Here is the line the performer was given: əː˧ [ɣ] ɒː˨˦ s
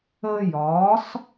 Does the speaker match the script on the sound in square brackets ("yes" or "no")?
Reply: no